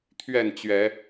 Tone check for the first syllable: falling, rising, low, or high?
falling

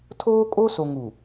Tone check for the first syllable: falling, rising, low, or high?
high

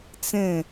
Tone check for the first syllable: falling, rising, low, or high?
falling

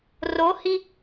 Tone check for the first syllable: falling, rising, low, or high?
rising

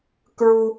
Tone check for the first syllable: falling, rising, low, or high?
high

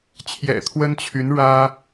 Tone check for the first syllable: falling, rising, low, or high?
low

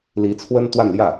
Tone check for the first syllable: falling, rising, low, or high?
rising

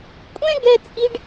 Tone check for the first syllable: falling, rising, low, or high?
high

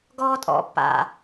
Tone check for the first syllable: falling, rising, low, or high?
high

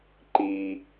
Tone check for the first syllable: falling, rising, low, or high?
low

